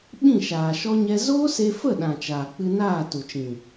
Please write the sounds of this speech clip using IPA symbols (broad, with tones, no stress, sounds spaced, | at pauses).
ɓ ĩ˦˨ ʃ aː˨ ʃ ɔ˦ ɲ ɛ˦ z oː˦ s e˧ f ə˦˨ ɗ ã˨ t͡ʃ aː˨ k͡p ɨ˧ n aː˦˨ t u˨ t͡ʃ ĩ˨